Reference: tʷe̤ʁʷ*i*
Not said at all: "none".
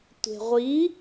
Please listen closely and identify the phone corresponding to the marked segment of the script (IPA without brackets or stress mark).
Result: i